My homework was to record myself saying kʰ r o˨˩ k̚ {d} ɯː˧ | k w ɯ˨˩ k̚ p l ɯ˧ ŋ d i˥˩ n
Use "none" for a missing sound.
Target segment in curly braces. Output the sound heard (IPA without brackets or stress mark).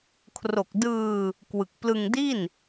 d